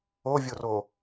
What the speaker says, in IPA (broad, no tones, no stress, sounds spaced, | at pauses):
o vʲ o r o